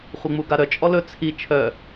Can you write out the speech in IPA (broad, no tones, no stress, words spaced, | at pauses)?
χʷɪŋ͡muɡaɾœ t͡ʃʼɔlɵ t͡sʰi t͡ʃʰœ